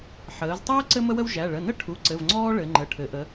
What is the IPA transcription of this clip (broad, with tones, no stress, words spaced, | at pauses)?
ħəː˩˧ztˤəː˥ ǀɘ˥mə˥wə˥wʒæ˩˧˩ ɭə˩˧˩nə˥ʈʰu˩˧˩ ǀɘ˩˧˩vŋ͡ǀɔː˥ɭɘ˩˧ ŋ͡ǃə˩˧˩ʈʰɘ˩˧ʔə˩˧